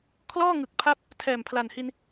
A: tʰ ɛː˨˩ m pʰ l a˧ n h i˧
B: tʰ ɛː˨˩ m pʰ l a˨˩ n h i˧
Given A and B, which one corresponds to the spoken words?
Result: B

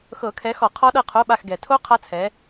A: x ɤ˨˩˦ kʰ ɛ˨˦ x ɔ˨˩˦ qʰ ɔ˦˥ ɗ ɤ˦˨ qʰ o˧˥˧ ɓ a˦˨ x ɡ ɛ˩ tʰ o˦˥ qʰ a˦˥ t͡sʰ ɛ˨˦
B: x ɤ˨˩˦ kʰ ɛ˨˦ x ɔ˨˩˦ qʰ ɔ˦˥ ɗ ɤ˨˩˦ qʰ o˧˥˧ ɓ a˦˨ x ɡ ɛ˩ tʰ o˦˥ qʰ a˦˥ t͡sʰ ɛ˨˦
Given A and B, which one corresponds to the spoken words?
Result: A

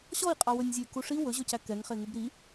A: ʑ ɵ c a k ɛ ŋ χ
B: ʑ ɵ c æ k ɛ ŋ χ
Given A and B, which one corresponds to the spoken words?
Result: B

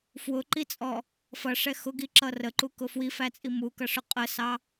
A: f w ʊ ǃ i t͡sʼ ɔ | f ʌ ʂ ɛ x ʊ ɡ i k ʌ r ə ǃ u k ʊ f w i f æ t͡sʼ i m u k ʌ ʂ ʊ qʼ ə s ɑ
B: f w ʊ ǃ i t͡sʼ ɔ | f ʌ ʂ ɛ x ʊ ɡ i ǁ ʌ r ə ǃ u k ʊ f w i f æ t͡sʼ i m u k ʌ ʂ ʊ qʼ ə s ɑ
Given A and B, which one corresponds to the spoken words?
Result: B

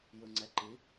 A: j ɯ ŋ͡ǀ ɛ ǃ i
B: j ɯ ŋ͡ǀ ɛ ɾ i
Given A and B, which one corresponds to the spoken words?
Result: A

